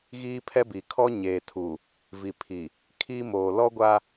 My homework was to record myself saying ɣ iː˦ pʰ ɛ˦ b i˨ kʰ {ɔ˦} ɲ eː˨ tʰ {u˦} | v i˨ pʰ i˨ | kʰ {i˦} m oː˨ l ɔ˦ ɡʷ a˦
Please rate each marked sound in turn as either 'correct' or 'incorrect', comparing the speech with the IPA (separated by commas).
correct, incorrect, correct